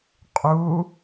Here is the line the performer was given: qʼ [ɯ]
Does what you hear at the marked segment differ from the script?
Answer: yes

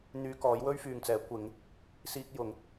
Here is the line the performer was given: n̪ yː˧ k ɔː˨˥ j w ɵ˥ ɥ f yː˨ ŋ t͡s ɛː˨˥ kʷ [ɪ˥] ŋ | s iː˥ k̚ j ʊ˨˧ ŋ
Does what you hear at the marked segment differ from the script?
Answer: yes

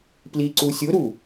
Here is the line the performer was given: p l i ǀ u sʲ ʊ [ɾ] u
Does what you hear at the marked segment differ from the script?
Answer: no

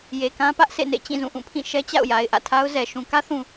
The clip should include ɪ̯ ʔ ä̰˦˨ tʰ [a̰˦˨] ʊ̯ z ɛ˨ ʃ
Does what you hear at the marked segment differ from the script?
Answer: yes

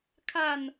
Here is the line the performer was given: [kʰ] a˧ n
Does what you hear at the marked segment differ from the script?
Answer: no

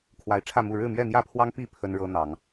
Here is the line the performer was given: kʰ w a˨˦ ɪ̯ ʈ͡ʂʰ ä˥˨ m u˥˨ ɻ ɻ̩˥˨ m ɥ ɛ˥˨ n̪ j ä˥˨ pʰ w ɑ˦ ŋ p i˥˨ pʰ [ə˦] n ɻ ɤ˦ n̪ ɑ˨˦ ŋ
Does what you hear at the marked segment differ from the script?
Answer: no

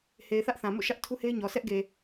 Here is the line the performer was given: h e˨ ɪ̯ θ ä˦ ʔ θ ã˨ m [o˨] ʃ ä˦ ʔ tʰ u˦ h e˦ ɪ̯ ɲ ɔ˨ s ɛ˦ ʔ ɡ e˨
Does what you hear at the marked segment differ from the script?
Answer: yes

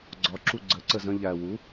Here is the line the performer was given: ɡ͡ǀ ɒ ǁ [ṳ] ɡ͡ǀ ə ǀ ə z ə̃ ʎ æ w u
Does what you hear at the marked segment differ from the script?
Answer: yes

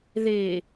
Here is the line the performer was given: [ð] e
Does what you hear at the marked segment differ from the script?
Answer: no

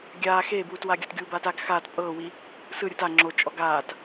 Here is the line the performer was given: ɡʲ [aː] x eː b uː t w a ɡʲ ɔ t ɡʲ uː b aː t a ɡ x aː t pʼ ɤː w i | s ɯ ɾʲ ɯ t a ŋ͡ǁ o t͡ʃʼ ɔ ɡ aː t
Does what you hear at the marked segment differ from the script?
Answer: no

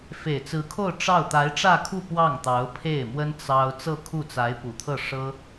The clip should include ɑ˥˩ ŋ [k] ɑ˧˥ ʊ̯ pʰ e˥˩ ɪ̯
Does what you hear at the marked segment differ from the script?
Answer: yes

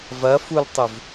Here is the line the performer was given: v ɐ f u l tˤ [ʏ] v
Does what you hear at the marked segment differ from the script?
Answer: no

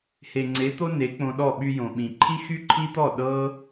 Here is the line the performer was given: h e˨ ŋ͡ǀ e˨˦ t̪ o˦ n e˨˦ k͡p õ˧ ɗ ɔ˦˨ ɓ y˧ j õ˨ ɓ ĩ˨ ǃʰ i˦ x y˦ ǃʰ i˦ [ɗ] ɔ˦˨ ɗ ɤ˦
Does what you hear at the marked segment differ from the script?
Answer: yes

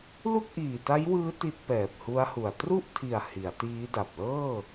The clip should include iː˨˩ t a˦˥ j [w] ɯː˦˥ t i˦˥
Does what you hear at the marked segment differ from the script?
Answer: no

